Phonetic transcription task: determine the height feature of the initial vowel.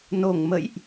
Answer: mid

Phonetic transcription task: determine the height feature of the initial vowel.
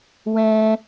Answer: mid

